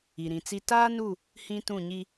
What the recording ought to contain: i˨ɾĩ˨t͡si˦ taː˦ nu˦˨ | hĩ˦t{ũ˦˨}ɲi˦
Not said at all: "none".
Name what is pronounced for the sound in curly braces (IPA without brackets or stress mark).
ũ˦˨